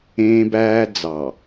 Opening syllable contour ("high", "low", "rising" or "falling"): high